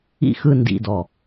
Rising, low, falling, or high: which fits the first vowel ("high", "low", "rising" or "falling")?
falling